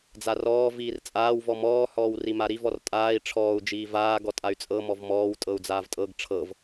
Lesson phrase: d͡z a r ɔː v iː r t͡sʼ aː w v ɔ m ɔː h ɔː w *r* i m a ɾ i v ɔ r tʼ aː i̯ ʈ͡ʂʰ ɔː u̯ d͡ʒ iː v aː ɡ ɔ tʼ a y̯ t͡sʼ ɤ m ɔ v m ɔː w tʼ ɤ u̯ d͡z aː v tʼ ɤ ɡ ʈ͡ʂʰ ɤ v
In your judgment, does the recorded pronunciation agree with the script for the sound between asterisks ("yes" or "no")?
yes